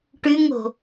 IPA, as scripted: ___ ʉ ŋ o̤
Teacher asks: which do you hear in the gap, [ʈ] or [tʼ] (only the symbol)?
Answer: ʈ